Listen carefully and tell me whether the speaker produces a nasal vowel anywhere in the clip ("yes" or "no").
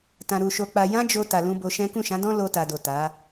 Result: yes